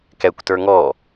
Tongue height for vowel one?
mid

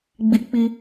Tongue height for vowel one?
high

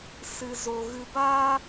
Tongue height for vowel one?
high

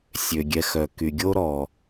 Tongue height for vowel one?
mid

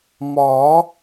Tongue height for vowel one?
low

